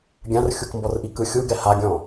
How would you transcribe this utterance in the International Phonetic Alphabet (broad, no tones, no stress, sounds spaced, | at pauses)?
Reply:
ɡʲ ã r xʲ u k m b ɔ r ʔ i k ɯ xʲ u ɡ ɛ h a ɡʲ ɔ̃